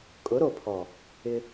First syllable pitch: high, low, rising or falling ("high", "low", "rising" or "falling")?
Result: rising